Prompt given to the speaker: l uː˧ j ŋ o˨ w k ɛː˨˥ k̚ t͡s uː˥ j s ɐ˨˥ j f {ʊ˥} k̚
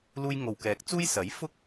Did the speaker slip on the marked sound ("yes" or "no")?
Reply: no